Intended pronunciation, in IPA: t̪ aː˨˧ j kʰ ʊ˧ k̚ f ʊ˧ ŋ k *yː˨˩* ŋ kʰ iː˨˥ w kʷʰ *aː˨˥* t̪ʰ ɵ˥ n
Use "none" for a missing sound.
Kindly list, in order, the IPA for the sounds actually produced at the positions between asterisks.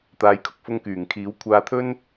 yː˨˩, aː˧

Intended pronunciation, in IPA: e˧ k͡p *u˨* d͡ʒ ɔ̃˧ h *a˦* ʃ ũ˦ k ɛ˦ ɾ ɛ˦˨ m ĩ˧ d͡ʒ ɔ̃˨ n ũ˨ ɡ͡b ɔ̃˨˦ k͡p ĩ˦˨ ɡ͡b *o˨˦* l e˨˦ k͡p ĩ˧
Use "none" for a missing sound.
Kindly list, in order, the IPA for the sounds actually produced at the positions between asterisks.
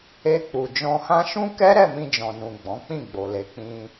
u˨, ã˦, o˨

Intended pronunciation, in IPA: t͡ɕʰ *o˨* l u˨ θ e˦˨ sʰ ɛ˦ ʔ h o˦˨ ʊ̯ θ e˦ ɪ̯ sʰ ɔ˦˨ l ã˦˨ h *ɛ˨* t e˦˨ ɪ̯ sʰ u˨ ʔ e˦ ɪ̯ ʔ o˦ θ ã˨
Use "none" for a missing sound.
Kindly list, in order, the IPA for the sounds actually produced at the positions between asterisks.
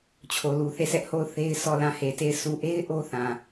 o˨, e˨

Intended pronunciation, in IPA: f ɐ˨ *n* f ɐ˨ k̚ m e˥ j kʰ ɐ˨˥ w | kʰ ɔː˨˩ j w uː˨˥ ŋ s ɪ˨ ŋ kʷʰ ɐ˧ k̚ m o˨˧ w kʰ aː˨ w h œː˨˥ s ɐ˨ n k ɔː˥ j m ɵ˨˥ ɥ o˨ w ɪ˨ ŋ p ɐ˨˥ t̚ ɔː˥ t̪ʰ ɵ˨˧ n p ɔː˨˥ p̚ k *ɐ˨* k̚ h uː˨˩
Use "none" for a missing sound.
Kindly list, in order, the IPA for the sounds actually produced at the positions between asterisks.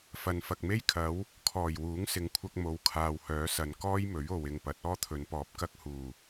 n, ɐ˧

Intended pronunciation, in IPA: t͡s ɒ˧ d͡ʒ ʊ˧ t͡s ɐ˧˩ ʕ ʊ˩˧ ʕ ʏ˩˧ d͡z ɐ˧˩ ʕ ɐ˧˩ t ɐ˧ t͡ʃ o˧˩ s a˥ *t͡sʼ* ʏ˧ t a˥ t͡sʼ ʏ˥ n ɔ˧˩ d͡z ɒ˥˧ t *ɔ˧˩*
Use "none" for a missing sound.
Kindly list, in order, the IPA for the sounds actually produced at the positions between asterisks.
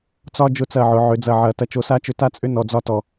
t͡ʃ, ɔ˧˩

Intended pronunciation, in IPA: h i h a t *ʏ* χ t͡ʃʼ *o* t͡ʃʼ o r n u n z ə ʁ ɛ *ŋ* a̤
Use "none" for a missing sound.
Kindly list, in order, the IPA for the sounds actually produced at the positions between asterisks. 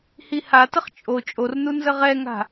ə, o, ŋ

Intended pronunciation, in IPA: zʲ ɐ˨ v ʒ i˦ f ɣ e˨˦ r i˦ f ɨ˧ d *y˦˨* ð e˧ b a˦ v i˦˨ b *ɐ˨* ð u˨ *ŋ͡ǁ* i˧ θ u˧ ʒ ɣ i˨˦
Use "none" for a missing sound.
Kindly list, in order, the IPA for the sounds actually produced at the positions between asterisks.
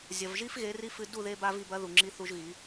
u˦˨, ɐ˦, ŋ͡ǁ

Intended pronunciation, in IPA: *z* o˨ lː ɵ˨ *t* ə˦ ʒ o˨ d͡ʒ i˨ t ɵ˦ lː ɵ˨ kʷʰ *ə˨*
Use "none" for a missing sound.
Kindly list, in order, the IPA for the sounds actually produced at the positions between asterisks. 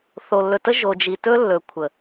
θ, t, ə˨

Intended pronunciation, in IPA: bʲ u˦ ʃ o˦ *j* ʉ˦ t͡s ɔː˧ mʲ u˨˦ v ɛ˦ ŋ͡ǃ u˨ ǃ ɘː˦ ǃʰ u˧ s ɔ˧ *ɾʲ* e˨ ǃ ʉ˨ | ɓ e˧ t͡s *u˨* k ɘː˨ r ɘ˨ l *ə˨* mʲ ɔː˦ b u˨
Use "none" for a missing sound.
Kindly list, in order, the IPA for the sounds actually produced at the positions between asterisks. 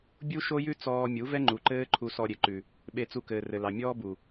j, ɾʲ, u˧, ɑ˨

